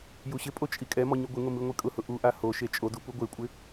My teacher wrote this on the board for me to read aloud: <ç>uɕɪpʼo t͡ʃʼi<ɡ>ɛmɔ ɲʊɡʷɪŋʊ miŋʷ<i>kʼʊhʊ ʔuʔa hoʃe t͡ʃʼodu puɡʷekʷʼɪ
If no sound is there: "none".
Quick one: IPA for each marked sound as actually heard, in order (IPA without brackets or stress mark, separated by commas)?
j, kʼ, i